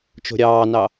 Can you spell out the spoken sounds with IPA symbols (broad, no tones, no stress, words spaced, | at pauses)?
t͡ʃo̤ɾʲɑːnɑ